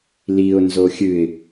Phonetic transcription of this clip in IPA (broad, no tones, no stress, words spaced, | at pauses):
liʊ̯ nzoxʲɨɪ̯